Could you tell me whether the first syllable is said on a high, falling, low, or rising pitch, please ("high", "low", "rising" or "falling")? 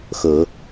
low